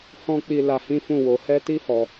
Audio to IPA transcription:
h ɔ̃˦ k͡p i˧ l a˧ h ĩ˦ f ũ˦˨ w o˧ h ɛ˧ t i˦ h ɔ˧

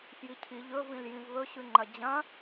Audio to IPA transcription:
f j i cʰ i ʎ ɵ v ĩ l j ĩ v β ɵ ɕ ʉ ŋ͡ǃ ɐ d͡ʑ ɐ̃

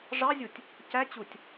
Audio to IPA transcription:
ʐ ɑ zʲ u tʲ | c æ t͡ɕ u tʲ

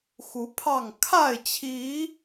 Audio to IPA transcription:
x u˨˦ pʰ ɑ˥˨ ŋ kʰ a˥˨ ɪ̯ t͡ɕʰ i˨˦

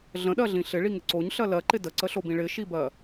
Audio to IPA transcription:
ɮ ə̃ ɗ ɜ ɮ ĩ ɬ ɪ ɭ i ŋ ɪ ǀ o ɲ ɬ ɜ l ɜ ǃ ɪ d ə ǀ ə ɬ o b ĩ ɭ ɪ ʃ i b ɜ

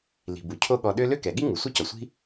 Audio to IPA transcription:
l i̤˩ b u˩ cʰ o˥ ɠ ɔ˨ ɗ ø˥ l ø˥ k ɛ˩ ɠ i˥ ŋ u˩ sʷ ɛ˥ c ɔ˩ sʷ i̤˥

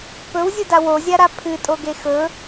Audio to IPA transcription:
p ɵ w zʲ u d a w o zʲ a ɾ a pʰ ɨ tʼ o ɡ e x ɵ

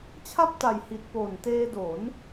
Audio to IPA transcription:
t͡ɕʰ a˥˩ p̚ t a˨˩ j h i˨˩ t̚ p o˨˩ n t eː˧ d o˩˦ n

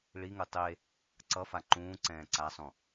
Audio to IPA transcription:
ɭ i ŋ ɯ tˤ e | ǀ ʌ f a ǃ ũː ǀ ɛ̃ː ǀ a sˤ ũ

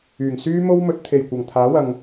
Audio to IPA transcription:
yː˨˩ ŋ s yː˥ m o˥ w m ɵ˨˥ t̚ t̪ʰ e˨˩ j kʷ ɐ˨˩ ŋ t̪ʰ aː˨˥ w ɐ˨ ŋ

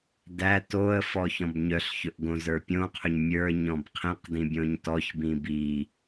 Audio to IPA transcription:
d æ t o ə̯ f ɔ ç ɔ̃ b ɲ œ ɬ ç ɵ ʔ ɡ õ z ə˞ pʲ õ qʰ ɵ ɲ mʲ ə˞ ɲ ɔ̃ b qʰ ĩ q d ĩ bʲ õ ɲ t ɔ ç b ĩ b i

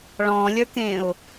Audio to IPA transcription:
ɭ ɔ̃ lʲ ə˞ k ẽ ʊ̯

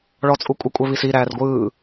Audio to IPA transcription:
ɭ ɔ t͡sʼ u kʷʼ ə kʷʼ ɛ β i s i ɾ æː r ɡʷ ɯː

